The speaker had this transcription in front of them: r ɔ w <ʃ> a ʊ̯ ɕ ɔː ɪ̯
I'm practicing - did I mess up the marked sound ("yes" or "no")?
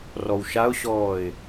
no